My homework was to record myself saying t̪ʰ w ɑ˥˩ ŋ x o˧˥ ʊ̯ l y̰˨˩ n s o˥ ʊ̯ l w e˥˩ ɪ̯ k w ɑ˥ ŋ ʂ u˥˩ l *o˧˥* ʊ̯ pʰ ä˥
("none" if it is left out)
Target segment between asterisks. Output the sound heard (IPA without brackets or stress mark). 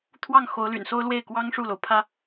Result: o˩